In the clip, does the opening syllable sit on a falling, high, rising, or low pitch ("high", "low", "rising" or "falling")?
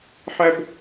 high